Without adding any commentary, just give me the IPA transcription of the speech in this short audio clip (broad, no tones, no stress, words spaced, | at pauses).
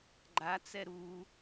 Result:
ɡ͡ǃa t͡sɛɾu